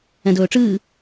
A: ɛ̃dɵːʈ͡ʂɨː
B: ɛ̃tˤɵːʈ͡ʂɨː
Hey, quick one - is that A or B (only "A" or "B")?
A